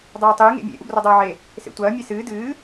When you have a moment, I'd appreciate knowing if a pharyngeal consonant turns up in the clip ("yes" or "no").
yes